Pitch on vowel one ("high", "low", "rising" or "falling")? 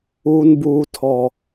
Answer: high